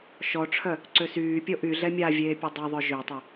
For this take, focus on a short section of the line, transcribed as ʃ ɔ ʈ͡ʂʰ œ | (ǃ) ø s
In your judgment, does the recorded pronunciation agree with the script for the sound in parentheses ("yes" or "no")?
no